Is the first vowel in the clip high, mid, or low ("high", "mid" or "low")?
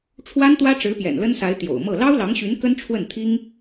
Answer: low